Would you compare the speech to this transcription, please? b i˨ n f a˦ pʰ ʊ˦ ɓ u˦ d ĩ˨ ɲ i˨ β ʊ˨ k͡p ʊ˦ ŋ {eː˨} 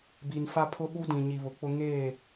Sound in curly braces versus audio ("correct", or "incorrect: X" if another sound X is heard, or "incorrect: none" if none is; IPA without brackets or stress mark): incorrect: eː˦˨